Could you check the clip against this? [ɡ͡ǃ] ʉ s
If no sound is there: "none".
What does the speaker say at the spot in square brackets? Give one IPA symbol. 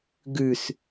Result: ɡ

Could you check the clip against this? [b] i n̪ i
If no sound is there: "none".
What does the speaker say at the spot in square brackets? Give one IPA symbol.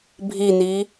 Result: bʱ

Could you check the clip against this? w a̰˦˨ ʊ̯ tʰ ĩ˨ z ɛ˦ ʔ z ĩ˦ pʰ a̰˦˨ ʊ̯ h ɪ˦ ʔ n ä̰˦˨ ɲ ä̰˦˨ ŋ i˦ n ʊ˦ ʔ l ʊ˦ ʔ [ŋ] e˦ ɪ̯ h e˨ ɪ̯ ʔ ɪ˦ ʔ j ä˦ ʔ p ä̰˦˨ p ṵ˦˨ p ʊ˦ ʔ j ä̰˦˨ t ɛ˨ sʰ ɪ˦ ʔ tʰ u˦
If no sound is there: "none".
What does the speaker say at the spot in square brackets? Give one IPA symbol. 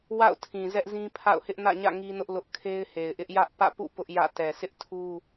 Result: kʰ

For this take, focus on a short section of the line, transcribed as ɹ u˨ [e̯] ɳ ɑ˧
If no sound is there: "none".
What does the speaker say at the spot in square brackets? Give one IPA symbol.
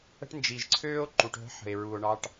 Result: o̯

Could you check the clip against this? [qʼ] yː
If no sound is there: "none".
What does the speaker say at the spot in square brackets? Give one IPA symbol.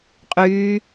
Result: qʼ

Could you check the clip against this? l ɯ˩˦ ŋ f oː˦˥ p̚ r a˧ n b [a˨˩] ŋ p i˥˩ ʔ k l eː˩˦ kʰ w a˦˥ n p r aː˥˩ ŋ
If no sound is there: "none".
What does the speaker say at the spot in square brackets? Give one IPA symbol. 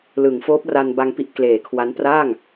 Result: a˧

